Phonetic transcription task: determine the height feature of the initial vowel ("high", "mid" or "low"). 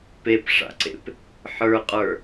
mid